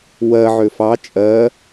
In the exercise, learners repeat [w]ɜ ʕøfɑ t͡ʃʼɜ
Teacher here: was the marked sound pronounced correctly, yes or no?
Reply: yes